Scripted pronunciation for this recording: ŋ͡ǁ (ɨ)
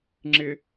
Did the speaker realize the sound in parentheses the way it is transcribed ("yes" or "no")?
no